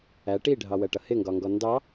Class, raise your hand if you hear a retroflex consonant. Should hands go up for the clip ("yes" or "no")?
yes